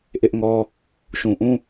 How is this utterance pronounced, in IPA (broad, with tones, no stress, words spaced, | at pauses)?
ʔɪ˦ʔŋɔ˦ | ʃũ˨ʔũ˦